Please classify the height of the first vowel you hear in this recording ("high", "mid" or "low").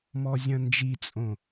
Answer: mid